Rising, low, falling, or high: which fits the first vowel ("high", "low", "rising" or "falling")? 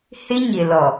high